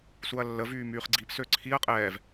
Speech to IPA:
suɐ̯lːə vyːmyːχɡ͡ǀip søǀʰiɐ̯ qʼɛːv

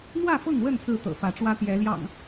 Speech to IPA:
n̪wä˥˨fɤ˥˨ŋwə˥˨n t͡sɹ̩˥˨t̪ɤ̰˨˩fä˨˦ ʈ͡ʂwä˦ t̪jɛ˨˦ljɑ̰˨˩ŋ

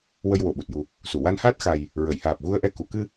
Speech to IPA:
wə˧jwo˨˩˨ɓu˨˩t̚ju˨˩ | su˨˩˨wa˧nhaː˦˥t̚ xa˨˩j | ɹə˨˩˨jhaː˨˩p̚ ɣu˧ə̯ʔɛ˧ ku˨˩˨kɨ˧

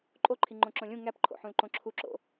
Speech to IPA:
ǃʼoǃʰi ŋ͡ǃõǁõlʲũ ŋæpǃʰo̰ħũl ǃõǁʰuǁo̰

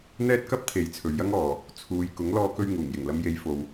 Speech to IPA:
n̪ɛː˥t̚kɐ˥p̚ t̪ʰe˨˥j t͡sʰɵ˨ɥjɐ˥ŋɔː˨ | t͡sʰuː˨j kʊ˨˥ŋlɔː˧kɵ˧ɥ ŋuː˨˩ŋjɪ˨˩ŋlɐ˧m je˨˧jfo˨w

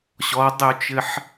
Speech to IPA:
ɕɔdˤʏu̯t͡ʃɘħ

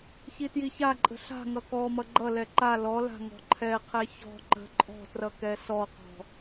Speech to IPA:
çitjiçaǃʼə̤ ɬa̤ŋʌ kɔmʌ ɡ͡ǃʌlɛ ǃa lɔla̤ ŋɔ̤ǃʰɛqʰɛ çɔ̤ ǃə̤ ǃʼɔ̤trʌ kɛsɔqɔ̤

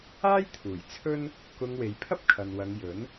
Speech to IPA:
aː˥j t̪ʰuː˨˩jt͡sʰɵ˥n | kʊ˧ŋwe˨˧jpʰɐ˥p̚kʰɐ˨n wɐ˨˧ŋjɵ˨˥n

